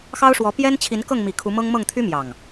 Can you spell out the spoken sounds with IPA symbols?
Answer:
x ɑ˦ ʊ̯ ʂ w ɔ˨˦ p j ɛ˦ n t͡ɕʰ i˨˦ n k ɤ˥˨ ŋ m i˨˩ kʰ u˨˦ m ɤ˦ ŋ m ɤ˥˨ ŋ t̪ʰ y˦ m j ɑ˨˩ ŋ

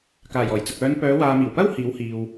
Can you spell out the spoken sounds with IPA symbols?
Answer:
k aː˨˩ j ɔː˨˩ j t͡s ɐ˨ k̚ œː˨˧ n p œː˨˧ w aː˨ m iː˨˩ w p ɐ˥ w h iː˨˥ w h iː˨ w

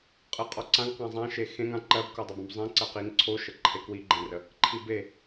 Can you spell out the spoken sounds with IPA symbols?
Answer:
qʼ ɜ qʼ ɔ ǀ ã ŋ q ã zˤ ã ʃ e x ẽ ŋ ã ǃ ɜ b k o dˤ ɜ b õ b zˤ ẽ ǀ ɜ q i ŋ ǀʰ o ʃ ə ǃʰ e k w i ɡ͡ǃ ẽ r ə | ǃʰ i b e

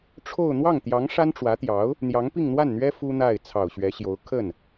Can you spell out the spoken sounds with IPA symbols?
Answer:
ʈ͡ʂʰ o˥˧ ʊ̯ n̪ w ɑ˥˩ ŋ t̪ j ɑ˧˥ ŋ ʂ a˥ n ʈ͡ʂ w ä˧˥ t̪ j ɑ˧˥ ʊ̯ | n̪ j ɑ˧˥ ŋ p i˥˧ ŋ n̪ w a˥˩ n n̪ ɥ ɛ˥ f u˥ n̪ a˥˩ ɪ̯ t͡sʰ ɑ˨˩ ʊ̯ ɕ ɥ ɛ˧˥ ɕ j o˧˥ ʊ̯ kʰ ə˥˩ n

